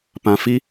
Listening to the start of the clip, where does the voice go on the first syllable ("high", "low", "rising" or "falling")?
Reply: low